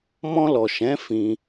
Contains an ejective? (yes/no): no